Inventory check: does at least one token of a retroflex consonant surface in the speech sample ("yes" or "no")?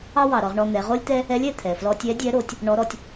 yes